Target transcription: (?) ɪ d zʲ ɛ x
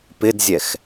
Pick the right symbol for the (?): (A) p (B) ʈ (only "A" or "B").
A